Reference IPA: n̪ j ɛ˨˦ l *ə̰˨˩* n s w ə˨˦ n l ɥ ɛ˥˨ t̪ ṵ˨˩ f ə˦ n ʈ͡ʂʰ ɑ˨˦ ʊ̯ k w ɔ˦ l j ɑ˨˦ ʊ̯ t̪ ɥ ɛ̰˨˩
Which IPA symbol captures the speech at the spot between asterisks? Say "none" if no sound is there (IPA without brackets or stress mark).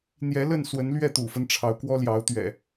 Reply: ə˥˨